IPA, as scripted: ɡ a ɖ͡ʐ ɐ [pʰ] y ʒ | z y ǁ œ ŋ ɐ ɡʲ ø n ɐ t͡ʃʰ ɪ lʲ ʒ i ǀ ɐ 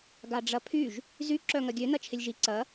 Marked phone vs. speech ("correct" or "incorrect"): correct